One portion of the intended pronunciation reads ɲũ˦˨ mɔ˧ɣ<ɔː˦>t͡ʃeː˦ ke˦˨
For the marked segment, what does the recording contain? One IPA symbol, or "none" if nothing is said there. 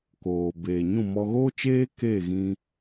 oː˦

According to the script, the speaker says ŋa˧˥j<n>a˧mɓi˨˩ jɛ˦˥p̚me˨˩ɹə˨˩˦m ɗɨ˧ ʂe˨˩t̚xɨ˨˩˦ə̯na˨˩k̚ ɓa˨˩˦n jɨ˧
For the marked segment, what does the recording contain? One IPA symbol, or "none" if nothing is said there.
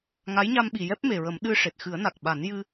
ɲ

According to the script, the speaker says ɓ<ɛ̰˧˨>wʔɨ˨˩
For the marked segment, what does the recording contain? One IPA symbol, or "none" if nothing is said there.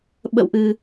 ə̰˧˨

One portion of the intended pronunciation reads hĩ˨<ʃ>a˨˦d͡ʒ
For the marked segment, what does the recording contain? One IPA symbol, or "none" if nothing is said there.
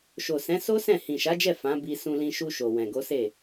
ʃ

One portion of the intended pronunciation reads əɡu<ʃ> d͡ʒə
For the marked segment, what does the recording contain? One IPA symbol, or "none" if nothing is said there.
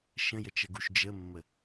ʃ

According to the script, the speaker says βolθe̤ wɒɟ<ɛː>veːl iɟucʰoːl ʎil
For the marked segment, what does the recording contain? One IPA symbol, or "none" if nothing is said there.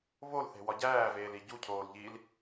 æː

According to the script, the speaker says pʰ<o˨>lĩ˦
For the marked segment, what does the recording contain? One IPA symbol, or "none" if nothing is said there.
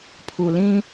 u˨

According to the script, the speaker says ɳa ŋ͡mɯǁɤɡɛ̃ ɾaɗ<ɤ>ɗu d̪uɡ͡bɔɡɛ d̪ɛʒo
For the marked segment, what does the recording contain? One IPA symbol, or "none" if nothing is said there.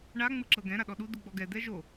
ɔ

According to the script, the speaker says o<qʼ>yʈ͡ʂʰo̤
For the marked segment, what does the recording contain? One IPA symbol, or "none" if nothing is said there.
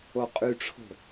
qʼ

